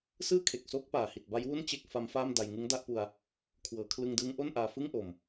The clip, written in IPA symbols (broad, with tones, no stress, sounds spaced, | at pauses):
s ɯː˥˩ kʰ e˨˩ k̚ s oː˦˥ k̚ p aː˨˩ h i˨˩ t̚ b a˦˥ j w u˥˩ n t͡ɕ e˥˩ k̚ f a˦˥ m f aː˥˩ m d a˧ j ŋ ɯ˦˥ ŋ d a˥˩ ʔ p u˧ a̯ | kʰ w ɤː˩˦ kʰ l ɯ˧ ŋ d ɯː˦˥ ŋ ʔ o˥˩ n ʔ aː˧ f ɯ˥˩ ŋ ʔ o˨˩ m